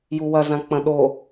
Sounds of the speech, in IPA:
j u w ɐ z ã k͡p ɐ̃ ɗ o

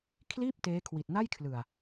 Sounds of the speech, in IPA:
kʰ l iː˥˩ p̚ t eː˦˥ kʰ w i˨˩ t̚ n a˥˩ j kʰ l ɯ˨˩ a̯

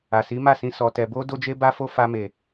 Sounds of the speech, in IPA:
a˨ s i˨˦ m a˦˨ s ĩ˧ s ɔ˨ t ɛ˨ b o˧ d o˦ d͡ʒ e˦ b a˦ f o˦ f a˧ m e˨

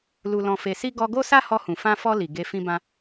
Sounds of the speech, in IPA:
l u˨ l ɔ̃˨ f e˨ s i˧ ɡ ɔ˧ ɡ o˦ s a˦ h ɔ˧ h ũ˨ f ã˧ f ɔ˧ l i˨ ɡ e˧ f ĩ˧ b ã˧

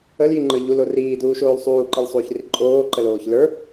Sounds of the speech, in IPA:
ə l j i ŋ͡ǃ ə˞ ʎ u l o r iː d uː ʃ oː l sˤ uː ǃ i l sˤ uː ç r i ǃʼ oː ǃ ə l oː ç l ə˞

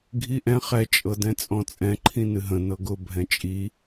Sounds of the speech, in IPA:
ɡʱ i ʔ ɛ̃ χ ɛ t͡ʃʼ ɤ d ɛ̃ t͡sʼ ɔ̃ t͡sʼ ɛ̃ ǃʰ ĩ n ɨ ɦ ə̃ n ɤ ɡ ʊ bʱ ɛ̃ t͡ʃʼ i

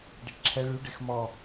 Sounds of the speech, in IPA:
ɖ ɛ ʈ ǁʰ ɛ ɭ y ɖ e x m ɔ

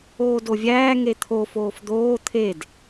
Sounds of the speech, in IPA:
oː d o vʲ æː ŋ e t̪ʰ o f oː f d̪ oː t̪ʰ e d

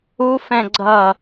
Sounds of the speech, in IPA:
u f ɛ̃ ɡ͡ǀ ʌ

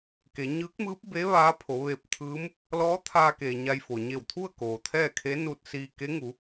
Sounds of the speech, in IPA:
k e˩˧ ɲ ɯː˧˥ k̚ m ɯː˧˥ p̚ b e˧˥ ʋ aː˧˥ pʰ o˩˧ ʋ e˧ p̚ t̪ʰ ɯː˧˥ m | l ɔː˧˥ t̪ʰ aː˧ k eː˩ ɲ a˧ j f o˩ ɲ e˧˩ w t̪ʰ u˥˨ ə̯ k oː˩ t̪ʰ ɛː˥˨ kʰ e˧˥ n uː˧ t̚ s iː˧ k e˧˥ ŋ u˩˧

